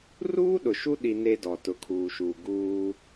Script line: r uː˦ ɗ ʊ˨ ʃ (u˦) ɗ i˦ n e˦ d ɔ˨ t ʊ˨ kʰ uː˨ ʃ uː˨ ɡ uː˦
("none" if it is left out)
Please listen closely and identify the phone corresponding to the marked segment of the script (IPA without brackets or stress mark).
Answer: u˦